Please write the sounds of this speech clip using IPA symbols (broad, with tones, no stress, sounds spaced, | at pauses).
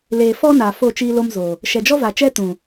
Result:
l eː˨ f ɔ˦ n a˨ f o˦˨ t͡ʃ iː˦ l o˦ m z o˨ | ʃ ɛ˨ d͡ʒ ɔ˦ v a˨ t͡ʃ ɛ˦ t ũ˨